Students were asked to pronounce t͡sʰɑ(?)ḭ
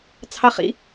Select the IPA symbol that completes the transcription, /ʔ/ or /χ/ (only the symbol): χ